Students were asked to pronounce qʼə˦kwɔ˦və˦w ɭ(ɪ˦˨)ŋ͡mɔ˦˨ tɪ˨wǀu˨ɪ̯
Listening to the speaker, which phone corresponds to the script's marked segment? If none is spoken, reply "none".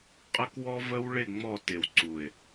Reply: ɪ˦˨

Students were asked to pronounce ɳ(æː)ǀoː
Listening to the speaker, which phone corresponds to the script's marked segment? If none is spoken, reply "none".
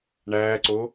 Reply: æː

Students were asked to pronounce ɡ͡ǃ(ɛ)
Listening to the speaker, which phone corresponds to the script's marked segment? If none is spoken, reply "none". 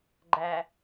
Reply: æ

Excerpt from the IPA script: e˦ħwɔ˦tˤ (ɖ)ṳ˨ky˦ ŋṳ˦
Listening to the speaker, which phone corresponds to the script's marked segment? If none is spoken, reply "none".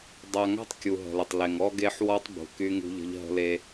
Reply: b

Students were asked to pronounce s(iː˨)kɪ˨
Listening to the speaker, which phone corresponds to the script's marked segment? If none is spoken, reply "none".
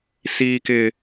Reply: iː˨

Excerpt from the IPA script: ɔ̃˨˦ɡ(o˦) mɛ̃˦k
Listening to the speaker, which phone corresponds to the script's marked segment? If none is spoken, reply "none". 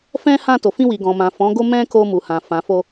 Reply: o˦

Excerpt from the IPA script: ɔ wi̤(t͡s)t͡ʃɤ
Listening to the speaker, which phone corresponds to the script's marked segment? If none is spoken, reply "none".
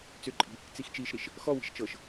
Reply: ʃ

